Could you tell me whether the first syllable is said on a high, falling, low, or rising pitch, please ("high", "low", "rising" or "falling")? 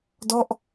falling